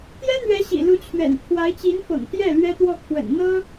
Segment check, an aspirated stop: present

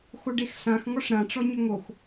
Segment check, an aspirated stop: absent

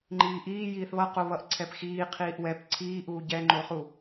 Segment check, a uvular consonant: present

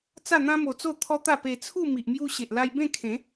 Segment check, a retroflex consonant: absent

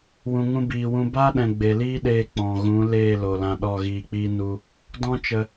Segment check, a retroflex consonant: absent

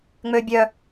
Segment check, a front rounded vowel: present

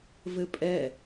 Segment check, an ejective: present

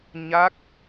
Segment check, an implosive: absent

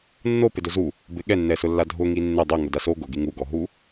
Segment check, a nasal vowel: absent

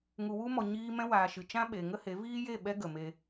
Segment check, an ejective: absent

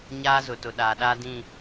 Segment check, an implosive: present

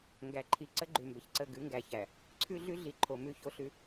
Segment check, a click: present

